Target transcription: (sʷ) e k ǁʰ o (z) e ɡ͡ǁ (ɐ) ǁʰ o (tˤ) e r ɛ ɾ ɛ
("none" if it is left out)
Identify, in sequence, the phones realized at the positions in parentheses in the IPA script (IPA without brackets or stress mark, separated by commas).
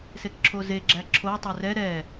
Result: s, z, æ, tˤ